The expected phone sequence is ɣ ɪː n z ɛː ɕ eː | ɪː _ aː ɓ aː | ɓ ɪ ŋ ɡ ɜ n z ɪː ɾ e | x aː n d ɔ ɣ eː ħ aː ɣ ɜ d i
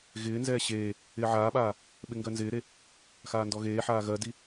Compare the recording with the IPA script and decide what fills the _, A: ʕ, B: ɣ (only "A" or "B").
A